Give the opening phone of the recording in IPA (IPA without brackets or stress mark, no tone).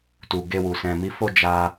t